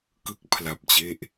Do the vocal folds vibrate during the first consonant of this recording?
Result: no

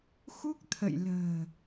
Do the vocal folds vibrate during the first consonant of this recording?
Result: no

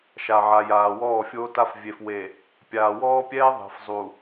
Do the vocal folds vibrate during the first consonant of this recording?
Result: no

